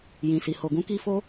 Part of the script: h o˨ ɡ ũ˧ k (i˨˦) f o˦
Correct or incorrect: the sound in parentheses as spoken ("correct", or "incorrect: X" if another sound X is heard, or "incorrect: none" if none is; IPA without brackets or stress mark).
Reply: incorrect: i˦